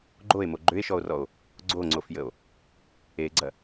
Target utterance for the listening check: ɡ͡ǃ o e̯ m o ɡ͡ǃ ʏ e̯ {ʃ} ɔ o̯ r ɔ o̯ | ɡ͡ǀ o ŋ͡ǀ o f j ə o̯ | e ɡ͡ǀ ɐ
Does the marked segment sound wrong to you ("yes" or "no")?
no